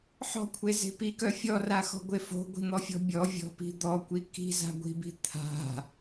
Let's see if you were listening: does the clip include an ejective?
no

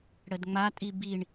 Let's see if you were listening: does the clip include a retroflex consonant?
yes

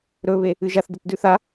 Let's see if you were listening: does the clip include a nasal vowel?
no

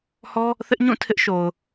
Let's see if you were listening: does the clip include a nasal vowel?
yes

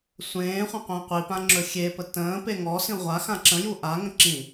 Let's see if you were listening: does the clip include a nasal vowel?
yes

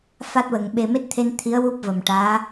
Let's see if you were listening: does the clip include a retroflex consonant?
yes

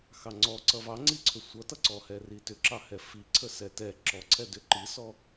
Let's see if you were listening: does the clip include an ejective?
no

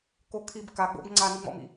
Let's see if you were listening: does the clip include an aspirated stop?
yes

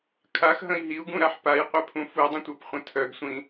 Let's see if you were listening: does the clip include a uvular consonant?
yes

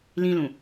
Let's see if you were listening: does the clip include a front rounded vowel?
no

